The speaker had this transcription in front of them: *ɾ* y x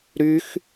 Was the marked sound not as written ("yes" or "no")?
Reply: no